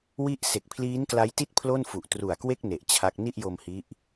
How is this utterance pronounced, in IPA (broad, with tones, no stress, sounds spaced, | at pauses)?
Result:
w i˥˩ ʔ s e˨˩ k̚ pʰ l iː˦˥ n k l a˦˥ j t i˥˩ t̚ pʰ l o˥˩ n f u˨˩ ʔ t r u˨˩ a̯ k w e˥˩ k̚ n e˨˩ ʔ t͡ɕʰ a˦˥ k̚ n i˥˩ ʔ j o˧ m h i˦˥ ʔ